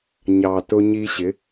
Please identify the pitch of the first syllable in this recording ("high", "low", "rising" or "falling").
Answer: low